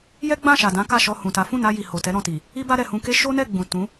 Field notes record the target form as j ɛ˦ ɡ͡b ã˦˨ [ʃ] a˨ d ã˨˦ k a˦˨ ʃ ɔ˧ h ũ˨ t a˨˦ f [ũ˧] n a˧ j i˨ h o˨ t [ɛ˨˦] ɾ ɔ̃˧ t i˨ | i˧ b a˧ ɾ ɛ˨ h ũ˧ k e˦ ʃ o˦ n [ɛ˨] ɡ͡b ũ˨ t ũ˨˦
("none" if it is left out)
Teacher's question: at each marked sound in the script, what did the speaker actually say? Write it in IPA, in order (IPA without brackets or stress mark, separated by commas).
ʃ, ũ˦˨, ɛ˨˦, ɛ˦˨